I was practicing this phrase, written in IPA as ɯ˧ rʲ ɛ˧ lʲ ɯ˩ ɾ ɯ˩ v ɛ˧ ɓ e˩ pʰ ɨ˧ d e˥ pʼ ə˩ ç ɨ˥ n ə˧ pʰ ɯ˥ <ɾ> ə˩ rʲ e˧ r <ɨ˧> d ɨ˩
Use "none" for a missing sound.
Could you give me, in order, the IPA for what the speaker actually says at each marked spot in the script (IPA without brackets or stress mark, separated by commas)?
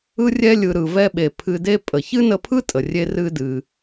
tʼ, ɨ˧